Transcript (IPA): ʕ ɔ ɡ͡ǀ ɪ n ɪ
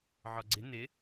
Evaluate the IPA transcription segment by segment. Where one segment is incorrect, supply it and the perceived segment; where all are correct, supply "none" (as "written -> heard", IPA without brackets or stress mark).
none